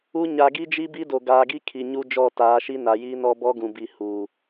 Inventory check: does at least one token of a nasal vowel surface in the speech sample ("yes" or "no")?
yes